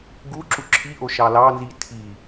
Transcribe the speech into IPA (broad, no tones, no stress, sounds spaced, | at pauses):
ɡ u ǁ u ǁʰ i ʔ o ʃ ɑ l ɑ n z i tʰ i